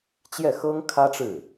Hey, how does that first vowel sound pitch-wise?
falling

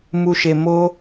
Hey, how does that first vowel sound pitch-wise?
low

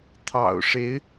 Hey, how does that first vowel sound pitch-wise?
low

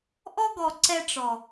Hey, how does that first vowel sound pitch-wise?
high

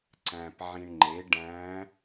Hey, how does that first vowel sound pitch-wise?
low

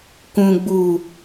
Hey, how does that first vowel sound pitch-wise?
low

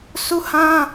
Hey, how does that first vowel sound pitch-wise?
high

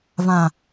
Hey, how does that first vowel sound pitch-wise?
low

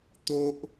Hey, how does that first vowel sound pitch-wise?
high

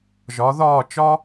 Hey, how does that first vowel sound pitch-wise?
rising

